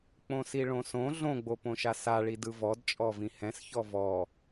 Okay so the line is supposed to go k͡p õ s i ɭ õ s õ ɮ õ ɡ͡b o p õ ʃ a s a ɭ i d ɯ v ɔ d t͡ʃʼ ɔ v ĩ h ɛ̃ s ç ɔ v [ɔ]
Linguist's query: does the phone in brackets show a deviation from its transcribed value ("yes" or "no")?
no